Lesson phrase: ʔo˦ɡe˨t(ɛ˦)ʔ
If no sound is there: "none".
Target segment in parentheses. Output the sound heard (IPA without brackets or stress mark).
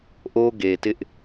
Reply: ɪ˦